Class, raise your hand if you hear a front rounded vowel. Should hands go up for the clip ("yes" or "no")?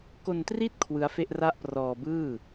no